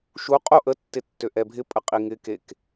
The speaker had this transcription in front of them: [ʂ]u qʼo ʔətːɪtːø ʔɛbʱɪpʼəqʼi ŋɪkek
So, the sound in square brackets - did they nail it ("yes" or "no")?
no